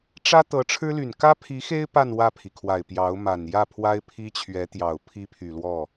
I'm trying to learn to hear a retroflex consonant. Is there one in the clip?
yes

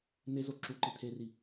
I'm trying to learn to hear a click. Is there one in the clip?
yes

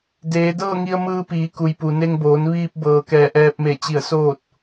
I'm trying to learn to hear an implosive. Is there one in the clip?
no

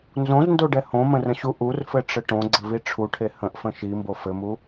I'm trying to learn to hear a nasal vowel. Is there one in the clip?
yes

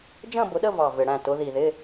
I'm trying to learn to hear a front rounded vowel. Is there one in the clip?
no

